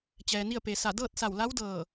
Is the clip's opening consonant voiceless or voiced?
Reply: voiceless